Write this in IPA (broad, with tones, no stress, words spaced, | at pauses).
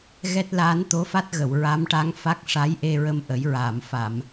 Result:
ɣɛ˦˥t̚laː˧˥n t̪o˧˥fa˦˥t̚ɣə˨˩˨w ɹa˧˥mʈa˧˥ŋ fa˦˥k̚ʂa˧˥jʔe˧ɹə˧m ʔə˨˩˦jɹaː˨˩˨mfa˨˩˨m